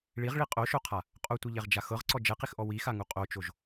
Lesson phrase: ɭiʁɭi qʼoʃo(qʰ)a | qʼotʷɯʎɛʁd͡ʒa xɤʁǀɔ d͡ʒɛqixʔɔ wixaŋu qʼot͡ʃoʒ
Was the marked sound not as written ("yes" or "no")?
no